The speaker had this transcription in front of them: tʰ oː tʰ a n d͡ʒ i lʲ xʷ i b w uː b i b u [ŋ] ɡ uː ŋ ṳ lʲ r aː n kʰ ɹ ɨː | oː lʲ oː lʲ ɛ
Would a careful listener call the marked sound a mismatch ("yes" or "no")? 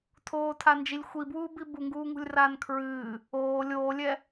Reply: no